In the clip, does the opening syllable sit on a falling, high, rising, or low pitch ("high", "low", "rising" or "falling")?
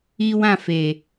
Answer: high